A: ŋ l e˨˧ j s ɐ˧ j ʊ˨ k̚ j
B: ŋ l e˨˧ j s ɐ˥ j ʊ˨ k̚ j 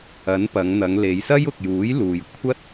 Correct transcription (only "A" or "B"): B